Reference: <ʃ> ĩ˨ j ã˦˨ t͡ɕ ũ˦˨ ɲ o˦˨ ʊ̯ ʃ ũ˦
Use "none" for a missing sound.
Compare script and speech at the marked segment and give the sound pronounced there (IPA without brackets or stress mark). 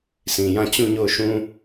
s